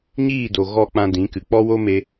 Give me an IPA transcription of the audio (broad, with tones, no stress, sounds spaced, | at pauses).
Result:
ɲ iː˦˨ d o˨ ɣ ɔ˧ k͡p ã˧ d ĩ˨˦ k ɨ˨ k͡p ɔ˦ w o˦ m e˧